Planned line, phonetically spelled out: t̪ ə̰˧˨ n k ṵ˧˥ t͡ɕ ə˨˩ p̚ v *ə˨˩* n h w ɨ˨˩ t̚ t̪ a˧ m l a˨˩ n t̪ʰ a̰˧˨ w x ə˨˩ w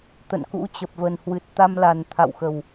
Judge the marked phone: correct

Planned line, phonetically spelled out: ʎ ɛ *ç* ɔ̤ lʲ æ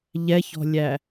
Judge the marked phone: correct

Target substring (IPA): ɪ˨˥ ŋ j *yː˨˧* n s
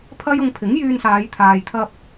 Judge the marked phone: incorrect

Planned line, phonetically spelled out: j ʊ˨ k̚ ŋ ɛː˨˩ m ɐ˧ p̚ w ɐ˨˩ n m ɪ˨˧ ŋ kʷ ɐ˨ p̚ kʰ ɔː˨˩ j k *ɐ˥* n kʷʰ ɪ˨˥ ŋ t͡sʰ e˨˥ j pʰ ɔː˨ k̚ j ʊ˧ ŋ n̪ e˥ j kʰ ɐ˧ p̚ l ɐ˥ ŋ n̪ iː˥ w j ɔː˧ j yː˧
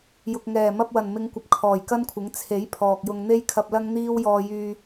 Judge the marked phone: correct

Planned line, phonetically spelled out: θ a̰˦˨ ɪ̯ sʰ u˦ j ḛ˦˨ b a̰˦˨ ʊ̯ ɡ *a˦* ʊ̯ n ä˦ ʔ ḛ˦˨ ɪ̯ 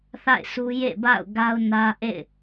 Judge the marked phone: correct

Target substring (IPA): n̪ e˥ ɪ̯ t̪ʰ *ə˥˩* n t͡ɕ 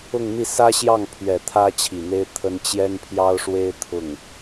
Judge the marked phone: incorrect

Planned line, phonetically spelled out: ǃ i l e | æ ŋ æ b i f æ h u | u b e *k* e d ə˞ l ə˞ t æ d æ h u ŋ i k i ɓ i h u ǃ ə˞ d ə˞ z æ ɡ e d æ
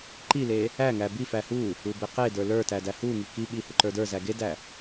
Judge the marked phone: incorrect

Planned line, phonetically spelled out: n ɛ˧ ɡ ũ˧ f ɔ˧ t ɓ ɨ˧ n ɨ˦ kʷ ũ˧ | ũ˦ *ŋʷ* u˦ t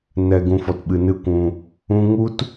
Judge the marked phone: incorrect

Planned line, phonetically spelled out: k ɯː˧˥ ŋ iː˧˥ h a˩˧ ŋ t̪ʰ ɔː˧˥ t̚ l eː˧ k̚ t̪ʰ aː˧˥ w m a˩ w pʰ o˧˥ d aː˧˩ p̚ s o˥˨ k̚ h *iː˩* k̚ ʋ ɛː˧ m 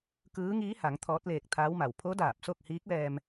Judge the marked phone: incorrect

